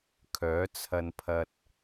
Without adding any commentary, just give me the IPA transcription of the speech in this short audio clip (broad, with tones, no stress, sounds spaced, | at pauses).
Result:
kʰ œː˨˥ t͡sʰ ɐ˧ n pʰ ɐ˧ t̚